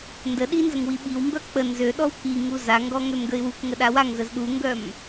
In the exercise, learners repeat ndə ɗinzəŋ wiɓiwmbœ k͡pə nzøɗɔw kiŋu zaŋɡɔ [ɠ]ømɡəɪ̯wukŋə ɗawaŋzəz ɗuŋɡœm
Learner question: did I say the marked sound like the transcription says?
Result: no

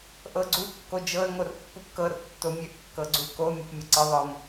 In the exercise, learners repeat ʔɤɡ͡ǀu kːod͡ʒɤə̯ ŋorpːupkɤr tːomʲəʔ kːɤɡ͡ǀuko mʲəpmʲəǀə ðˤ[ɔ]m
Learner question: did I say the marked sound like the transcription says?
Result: no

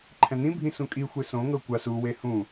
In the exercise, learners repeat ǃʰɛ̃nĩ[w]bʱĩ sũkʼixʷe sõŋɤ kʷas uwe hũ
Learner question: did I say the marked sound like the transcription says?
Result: no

